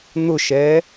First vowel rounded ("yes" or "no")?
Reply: yes